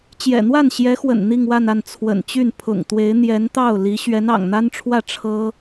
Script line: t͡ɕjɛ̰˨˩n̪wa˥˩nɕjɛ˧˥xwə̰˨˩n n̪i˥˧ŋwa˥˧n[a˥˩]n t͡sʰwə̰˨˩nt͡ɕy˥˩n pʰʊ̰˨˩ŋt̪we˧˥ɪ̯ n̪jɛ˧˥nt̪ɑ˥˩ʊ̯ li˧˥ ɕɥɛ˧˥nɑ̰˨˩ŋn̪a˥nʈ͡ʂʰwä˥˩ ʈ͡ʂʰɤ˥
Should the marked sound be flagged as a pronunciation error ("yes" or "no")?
no